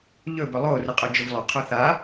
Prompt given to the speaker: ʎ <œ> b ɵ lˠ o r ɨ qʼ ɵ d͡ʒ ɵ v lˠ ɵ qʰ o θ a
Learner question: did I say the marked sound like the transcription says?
no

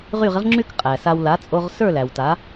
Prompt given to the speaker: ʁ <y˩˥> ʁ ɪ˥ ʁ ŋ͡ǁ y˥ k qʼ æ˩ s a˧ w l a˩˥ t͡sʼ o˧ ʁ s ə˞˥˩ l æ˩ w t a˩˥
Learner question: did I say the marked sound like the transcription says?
no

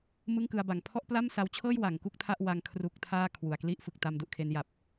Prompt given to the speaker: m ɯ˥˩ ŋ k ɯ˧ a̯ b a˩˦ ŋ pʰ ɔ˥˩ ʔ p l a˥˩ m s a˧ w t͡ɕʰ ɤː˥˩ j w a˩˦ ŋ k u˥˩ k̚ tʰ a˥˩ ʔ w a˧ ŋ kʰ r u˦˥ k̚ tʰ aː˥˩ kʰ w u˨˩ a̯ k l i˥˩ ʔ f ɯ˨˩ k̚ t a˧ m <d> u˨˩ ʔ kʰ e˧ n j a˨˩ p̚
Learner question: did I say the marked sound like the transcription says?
yes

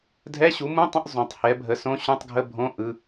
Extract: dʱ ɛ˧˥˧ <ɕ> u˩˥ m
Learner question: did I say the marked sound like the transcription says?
yes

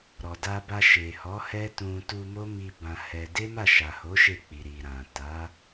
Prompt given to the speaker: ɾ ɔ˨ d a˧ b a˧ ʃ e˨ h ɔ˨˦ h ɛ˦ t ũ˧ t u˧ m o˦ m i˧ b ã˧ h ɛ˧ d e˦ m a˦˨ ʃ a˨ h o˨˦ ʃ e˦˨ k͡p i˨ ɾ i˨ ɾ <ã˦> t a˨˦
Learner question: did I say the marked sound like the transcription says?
no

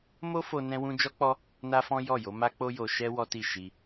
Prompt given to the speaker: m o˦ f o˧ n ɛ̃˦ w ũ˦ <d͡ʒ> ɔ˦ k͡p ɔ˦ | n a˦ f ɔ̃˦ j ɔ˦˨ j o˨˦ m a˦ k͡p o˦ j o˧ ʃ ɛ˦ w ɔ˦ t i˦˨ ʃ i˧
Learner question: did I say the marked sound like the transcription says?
yes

